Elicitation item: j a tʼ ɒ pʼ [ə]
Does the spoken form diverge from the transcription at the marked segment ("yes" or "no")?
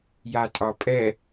yes